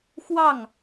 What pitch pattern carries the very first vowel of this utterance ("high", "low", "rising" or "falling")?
falling